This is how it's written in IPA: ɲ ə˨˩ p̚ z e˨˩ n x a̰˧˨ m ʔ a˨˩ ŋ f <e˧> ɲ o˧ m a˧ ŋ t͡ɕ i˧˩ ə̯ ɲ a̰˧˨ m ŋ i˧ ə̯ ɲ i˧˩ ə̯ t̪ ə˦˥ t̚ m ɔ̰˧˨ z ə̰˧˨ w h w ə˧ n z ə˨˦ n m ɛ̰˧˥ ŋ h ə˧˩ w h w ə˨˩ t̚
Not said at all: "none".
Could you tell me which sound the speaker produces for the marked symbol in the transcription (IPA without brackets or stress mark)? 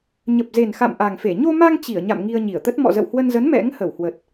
e˧˩